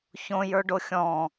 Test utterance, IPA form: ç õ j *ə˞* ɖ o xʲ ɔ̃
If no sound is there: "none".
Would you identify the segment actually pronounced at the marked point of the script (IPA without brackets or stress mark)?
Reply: ə˞